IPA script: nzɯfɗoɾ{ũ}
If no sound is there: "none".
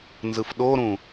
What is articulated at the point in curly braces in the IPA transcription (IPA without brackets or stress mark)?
ũ